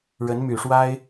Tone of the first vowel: rising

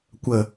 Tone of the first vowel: low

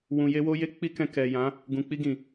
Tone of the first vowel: low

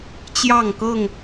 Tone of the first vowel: falling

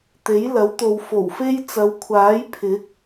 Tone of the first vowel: rising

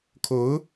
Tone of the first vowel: rising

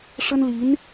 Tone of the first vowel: high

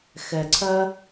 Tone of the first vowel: low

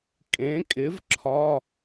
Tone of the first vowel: rising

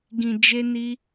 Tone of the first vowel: low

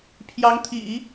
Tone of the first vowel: rising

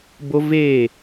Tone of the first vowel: high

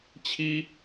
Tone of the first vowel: high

